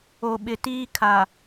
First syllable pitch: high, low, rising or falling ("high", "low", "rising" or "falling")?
low